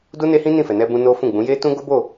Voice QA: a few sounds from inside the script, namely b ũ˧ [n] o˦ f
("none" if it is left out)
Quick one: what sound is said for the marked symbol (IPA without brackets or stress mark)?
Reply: n